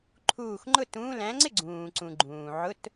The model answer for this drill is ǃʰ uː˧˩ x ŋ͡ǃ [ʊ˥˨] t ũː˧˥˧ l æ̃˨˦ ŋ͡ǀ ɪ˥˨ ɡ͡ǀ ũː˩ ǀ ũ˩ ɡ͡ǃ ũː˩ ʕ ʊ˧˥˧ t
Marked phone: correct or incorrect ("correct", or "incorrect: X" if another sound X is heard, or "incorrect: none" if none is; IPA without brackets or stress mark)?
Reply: correct